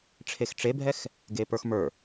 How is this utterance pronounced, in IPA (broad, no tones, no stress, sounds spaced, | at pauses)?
ʈ͡ʂʰ e x ʈ͡ʂ e bʱ ɛ x | ɡ e p ə˞ x m ə˞